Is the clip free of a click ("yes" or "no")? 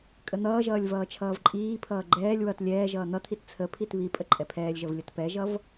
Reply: no